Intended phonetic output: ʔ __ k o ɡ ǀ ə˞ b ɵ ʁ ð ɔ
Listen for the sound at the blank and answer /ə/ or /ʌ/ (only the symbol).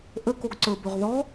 ə